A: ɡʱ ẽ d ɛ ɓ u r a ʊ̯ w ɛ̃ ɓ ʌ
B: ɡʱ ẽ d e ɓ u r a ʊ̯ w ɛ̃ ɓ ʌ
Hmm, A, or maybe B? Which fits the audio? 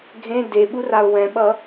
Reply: B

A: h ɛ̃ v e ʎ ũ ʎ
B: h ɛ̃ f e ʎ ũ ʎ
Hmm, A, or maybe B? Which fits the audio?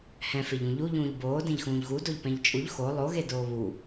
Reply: B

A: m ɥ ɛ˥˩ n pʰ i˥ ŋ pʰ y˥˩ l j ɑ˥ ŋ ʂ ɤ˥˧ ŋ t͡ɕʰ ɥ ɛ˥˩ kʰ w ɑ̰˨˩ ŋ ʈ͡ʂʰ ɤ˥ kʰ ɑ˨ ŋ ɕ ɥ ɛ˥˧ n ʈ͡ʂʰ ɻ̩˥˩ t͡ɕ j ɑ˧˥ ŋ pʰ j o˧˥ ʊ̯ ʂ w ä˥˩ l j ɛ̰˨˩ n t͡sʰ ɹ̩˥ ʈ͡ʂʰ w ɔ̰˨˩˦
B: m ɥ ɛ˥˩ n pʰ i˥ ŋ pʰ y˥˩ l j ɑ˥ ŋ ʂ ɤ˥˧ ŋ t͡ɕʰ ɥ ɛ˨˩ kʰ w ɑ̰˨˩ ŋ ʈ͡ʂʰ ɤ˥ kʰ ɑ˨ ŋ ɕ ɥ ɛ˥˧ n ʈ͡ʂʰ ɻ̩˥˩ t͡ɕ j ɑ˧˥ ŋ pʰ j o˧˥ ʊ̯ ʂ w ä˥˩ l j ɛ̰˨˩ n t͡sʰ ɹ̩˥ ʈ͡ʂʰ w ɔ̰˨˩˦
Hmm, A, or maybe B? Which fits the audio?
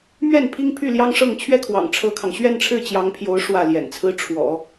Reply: A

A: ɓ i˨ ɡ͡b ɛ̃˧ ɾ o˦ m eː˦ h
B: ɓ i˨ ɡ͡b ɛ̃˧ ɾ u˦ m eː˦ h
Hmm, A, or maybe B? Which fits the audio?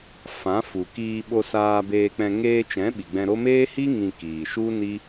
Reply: A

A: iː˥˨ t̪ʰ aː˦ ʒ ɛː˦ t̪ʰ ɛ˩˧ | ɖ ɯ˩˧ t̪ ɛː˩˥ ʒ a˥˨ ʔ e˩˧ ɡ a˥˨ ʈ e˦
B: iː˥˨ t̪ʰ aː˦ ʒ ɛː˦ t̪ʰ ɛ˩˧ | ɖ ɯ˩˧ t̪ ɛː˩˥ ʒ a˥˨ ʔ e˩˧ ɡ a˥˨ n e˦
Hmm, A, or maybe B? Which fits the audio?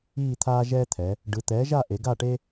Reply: A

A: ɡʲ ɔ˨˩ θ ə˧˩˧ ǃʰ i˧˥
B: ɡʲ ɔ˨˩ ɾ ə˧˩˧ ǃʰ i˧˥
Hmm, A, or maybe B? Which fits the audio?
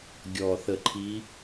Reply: A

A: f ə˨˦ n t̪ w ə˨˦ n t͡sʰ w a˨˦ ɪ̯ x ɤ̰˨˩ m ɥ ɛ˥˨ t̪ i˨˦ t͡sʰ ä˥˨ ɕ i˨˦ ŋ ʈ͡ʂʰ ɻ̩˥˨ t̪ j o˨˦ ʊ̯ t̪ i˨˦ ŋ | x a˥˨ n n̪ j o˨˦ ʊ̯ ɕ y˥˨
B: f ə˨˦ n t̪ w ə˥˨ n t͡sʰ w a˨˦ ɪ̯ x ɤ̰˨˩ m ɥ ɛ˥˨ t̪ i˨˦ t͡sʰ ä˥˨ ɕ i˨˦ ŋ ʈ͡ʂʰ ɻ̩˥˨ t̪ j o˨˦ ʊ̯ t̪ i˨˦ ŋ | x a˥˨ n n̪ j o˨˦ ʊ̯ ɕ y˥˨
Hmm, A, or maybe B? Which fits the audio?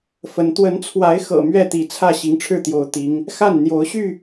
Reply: A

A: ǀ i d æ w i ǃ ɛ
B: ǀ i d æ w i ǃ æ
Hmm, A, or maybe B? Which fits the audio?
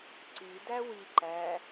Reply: B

